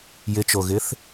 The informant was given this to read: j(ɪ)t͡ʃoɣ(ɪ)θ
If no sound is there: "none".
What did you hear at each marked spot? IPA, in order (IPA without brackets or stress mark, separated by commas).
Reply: ɪ, ɪ